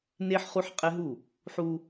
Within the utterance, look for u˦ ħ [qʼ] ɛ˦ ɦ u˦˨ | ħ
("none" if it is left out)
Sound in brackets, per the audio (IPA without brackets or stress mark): qʼ